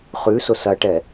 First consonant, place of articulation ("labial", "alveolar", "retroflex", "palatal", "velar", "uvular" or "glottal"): uvular